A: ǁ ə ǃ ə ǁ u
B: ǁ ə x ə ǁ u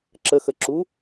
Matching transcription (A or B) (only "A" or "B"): B